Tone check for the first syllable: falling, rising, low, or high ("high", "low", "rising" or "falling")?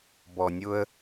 low